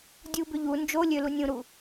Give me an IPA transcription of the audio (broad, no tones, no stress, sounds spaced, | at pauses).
dʲ u b ʏ ʎ u n d͡ʒ o lʲ ø l u nʲ ũ ɾ u